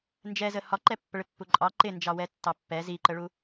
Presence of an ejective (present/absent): present